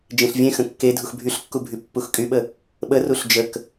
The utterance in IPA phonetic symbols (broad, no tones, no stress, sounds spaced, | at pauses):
d͡ʒ ẽ ɬ vʲ ẽ x ə̃ kː e dʱ u x bʱ y ɬ kː u bʱ y pː u x kʼ y ɓ ə | ɓ ə r u ɬ d͡ʒ ə k